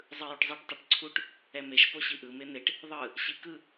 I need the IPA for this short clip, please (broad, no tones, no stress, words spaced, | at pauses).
zˤɯjuʈzˤeʈ tˤeʈǀʰuʈ | ɛmeʃ poɕiʔɯ men̪eʈ | ðˤɯ | ɕikɯ